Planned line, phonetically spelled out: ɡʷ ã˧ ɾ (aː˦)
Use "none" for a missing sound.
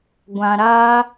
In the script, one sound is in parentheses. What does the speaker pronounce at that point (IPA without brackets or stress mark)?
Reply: aː˦